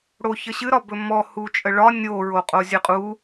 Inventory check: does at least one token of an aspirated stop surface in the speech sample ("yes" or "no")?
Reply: no